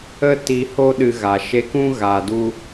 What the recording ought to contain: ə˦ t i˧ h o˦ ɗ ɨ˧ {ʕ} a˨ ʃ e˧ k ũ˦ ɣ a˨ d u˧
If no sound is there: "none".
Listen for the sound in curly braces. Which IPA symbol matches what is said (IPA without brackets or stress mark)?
ɣ